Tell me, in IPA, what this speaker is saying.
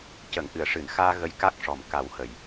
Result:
c ə˨˩˨ ŋ ʔ ɨ˨˩˨ ə̯ ʂ ɨ˨˩˨ n x aː˧ ɣ ə˧ j k a˦˥ k̚ ʂ ɔ˨˩ m k a˨˩˦ w h ə˨˩˨ j

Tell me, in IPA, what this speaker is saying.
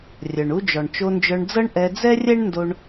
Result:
rʲ œ˩ ɳ u˧ d͡ʒ ɔ˩ ɳ t͡ʃ o˧ n d͡ʒ œ˧ ɳ d͡z ɤ˥ ɳ ʔ ɛ˧ d͡z ɛ˥ rʲ ɛ˥ ɳ n d o˧ ɳ

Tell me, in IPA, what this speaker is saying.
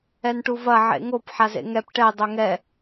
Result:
ɛ n ʈ u v ɐ ʕ ḛ ŋ o p ħ a z ḛ ŋ ɛ p ʈ ɛ dˤ o ŋ ɛ

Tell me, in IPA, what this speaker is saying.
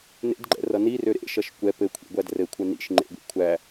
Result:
n ḛ d ɡ͡ǃ ɛ̰ r ʌ n i r ø ɾ ḛ ʃ ʌ ʃ kʷ ɛ p ɘ kʷʰ ḭ ɡʷ æ d r ɘ kʷʰ ɛ n ḭ ʃ ŋ͡ǃ ḛ ɡʷ ḭ kʷʰ æ

